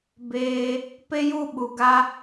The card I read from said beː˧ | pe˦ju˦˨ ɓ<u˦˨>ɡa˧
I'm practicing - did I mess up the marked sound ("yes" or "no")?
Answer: yes